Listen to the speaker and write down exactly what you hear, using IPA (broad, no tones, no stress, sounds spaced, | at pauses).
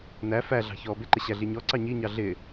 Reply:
n æ f æ ɮ ɑ̤ ç ɔː b ɪ ǃ ɪ ɕ æ ɮ i ɲ ɔ ǀ ɑ ɲ i ɲ ɑ ɮ ɪ